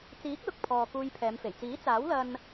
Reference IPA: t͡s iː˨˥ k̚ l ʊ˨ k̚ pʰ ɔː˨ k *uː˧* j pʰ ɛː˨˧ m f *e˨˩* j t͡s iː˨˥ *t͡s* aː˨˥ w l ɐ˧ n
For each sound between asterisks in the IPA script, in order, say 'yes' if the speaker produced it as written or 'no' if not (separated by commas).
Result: yes, yes, yes